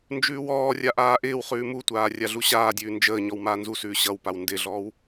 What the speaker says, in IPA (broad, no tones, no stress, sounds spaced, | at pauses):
n d͡ʒ ʉː w ɔː rʲ a ʔ aː ʔ ɪː w χ ʉː m u tʷ aː rʲ a ɮ u ɕ aː dʲ ʉː n d͡ʒ əː ɲ ɔ w m aː n z u s ʉː ɕ ʌ w p a w n d ɪ ɮ ɔː w